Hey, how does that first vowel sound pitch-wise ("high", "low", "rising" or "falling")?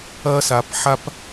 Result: high